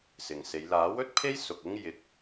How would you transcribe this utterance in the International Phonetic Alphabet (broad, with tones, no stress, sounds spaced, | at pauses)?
s ɪ˨ ŋ s e˨˧ j l aː˨˥ w ɵ˨˥ t̚ pʰ e˥ j s ʊ˨ k̚ ɪ˥ ŋ j ɪ˨˥ k̚